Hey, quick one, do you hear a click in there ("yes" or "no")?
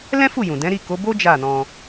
no